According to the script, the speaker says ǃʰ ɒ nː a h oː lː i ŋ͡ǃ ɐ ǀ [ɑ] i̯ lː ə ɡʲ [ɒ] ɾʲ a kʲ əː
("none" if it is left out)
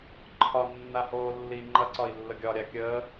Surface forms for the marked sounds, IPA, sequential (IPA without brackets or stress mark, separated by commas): ɒ, ɒ